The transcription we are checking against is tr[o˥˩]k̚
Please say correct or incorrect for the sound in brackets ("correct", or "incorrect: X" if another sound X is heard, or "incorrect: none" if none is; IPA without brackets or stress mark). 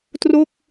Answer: correct